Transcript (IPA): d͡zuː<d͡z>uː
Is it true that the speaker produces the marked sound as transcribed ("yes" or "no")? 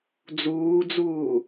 yes